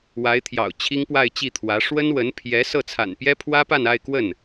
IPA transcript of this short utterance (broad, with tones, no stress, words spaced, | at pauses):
wa˧˥ɪ̯t̪ʰjɑ̰˨˩ʊ̯ t͡ɕʰi˥ŋpwa˥˧ɪ̯t͡ɕi˥˩t̪ʰwä˧˥ ʂwə˥n wə˧˥npʰjɛ˧˥ sɤ˥˩t͡sʰa̰˨˩npjɛ˥ pʰwä˥pa˥˧na˥˧ɪ̯kwə˥˩n